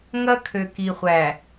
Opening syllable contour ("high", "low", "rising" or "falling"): high